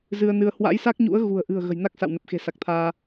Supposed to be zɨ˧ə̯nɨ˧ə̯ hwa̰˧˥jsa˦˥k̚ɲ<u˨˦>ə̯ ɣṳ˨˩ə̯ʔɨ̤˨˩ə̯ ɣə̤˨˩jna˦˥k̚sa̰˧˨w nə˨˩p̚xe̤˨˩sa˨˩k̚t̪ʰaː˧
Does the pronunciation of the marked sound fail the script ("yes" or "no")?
yes